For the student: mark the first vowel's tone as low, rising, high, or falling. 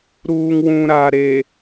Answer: low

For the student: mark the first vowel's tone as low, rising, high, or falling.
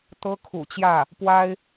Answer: high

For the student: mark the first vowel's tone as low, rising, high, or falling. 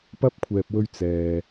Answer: high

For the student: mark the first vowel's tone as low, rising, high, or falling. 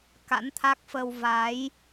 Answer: rising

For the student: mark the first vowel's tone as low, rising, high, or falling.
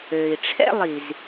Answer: low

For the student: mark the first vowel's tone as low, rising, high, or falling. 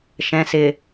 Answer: low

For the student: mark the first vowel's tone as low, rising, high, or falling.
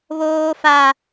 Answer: high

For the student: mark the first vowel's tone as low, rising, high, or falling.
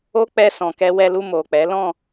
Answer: high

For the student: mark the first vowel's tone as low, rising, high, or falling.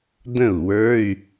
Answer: falling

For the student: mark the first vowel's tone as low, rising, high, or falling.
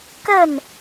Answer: falling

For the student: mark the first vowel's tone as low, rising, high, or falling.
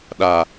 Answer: low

